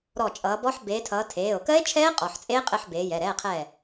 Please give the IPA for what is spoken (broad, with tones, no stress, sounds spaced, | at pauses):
ɾ ɔ˧˩ t͡ʃʼ ʌː˨˦ b ɔ˦˥ ħ b eː˨˦ tʰ ʌː˨˦ tʰ eː˩˧˩ o̯ k ɜ˦˥ e̯ t͡ʃʰ ɛː˦˥ qʼ ɔ˩˧˩ ħ t͡sʼ eː˦˥ qʼ ɘ˧˥˧ ħ b eː˨˦ j ɛ˩˧˩ ɾ ɛː˧˥˧ qʰ ɛ˥˨